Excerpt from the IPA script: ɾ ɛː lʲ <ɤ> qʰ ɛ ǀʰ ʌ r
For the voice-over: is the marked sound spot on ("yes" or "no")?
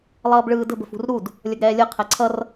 yes